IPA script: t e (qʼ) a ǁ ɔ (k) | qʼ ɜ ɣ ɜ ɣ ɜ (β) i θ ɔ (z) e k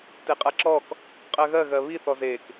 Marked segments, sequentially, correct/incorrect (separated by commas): correct, correct, correct, correct